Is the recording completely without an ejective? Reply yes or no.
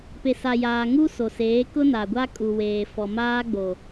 no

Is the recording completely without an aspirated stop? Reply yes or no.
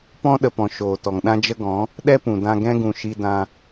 yes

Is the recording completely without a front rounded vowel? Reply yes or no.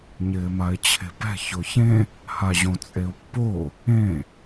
yes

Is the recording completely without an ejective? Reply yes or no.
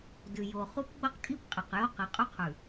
no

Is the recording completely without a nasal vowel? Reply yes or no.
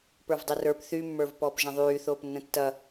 no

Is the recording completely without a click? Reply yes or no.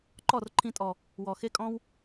no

